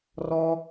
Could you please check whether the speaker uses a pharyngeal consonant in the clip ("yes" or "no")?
no